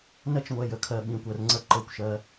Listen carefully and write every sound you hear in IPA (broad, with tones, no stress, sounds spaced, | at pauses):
n ɜ˦ t͡ʃ ŋʷ ɛ˧ j ə˨ kʰ ɜ˧ ɓ ĩ˧ kʷ ɜ˧ r ŋ͡ǀ ə˦˨ ǃ ɤ˦˨ kʷ ʃ ɜ˦